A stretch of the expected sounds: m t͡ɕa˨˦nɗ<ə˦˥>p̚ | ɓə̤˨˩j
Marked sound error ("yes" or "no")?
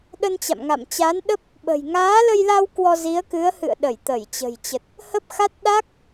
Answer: no